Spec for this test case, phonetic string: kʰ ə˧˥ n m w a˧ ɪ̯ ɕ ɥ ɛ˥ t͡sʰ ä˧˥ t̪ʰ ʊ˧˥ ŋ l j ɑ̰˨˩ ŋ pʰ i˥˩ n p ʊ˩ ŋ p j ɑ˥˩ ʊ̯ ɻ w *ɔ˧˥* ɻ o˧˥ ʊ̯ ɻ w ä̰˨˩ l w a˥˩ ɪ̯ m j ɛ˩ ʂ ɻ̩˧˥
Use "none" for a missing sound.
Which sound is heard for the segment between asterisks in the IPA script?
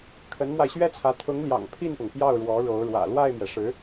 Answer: ɔ˧˥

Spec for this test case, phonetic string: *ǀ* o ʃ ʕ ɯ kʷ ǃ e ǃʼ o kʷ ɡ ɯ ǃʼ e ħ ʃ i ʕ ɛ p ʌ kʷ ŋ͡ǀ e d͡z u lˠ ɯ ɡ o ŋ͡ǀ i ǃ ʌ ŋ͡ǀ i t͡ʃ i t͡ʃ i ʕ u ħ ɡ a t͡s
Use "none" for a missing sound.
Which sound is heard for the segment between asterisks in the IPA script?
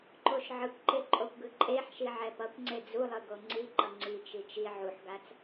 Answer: ǃ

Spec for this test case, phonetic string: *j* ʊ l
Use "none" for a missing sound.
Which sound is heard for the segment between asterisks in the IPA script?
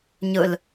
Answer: ɲ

